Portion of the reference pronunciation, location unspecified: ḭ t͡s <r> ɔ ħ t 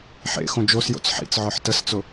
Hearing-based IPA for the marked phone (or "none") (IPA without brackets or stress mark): ʕ